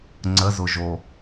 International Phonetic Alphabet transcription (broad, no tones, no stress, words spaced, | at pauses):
ŋ͡ǀəzʊʒo